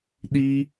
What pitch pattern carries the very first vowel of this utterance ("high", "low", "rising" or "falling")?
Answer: high